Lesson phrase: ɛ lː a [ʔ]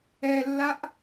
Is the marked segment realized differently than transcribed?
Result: no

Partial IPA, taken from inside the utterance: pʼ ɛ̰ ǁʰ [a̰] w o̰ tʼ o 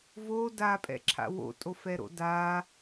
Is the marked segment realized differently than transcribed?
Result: no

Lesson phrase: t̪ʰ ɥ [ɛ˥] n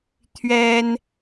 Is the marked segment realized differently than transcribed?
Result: no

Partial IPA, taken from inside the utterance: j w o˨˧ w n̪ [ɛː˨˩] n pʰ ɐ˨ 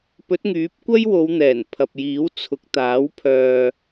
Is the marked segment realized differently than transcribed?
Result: no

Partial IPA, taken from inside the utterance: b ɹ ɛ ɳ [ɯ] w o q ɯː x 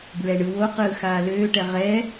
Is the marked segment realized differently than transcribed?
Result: no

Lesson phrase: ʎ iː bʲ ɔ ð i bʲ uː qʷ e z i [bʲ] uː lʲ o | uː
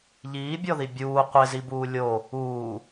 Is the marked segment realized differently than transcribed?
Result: yes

